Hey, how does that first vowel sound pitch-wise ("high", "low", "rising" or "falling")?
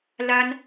high